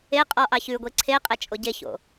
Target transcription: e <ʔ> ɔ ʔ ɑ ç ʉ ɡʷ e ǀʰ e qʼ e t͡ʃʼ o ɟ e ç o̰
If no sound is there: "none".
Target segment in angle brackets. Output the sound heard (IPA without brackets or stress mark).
qʼ